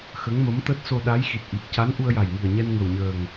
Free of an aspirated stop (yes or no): yes